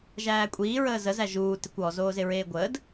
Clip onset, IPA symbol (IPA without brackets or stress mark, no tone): ʒ